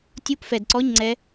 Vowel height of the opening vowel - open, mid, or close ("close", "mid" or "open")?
close